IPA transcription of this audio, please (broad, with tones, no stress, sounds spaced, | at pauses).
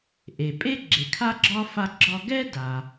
ʔ e˩ pʼ e˥ ɡ͡ǁ e˩ kʰ a˥ ɡ͡ǁ ɒ˥ f a˧ ɡ͡ǁ ɒ˧ ɡ ɛ˥ d a˩